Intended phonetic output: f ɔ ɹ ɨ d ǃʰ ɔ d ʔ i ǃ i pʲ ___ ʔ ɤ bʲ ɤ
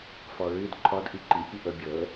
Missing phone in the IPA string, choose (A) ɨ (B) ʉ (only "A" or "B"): A